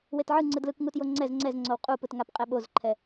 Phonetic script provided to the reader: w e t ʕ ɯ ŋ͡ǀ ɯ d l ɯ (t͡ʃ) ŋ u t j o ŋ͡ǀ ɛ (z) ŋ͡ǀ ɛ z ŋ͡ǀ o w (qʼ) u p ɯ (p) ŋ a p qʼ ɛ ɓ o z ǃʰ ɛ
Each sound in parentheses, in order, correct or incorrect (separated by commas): incorrect, correct, correct, incorrect